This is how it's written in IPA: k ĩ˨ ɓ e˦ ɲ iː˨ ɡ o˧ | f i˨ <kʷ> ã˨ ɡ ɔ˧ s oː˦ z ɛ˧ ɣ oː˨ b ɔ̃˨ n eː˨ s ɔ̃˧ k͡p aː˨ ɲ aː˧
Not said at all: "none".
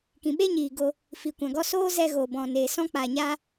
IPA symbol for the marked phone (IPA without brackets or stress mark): kʷ